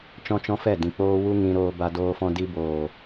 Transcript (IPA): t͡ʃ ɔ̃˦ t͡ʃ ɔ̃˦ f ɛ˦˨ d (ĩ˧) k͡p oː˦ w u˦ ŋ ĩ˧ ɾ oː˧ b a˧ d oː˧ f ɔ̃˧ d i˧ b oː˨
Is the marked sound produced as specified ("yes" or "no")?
no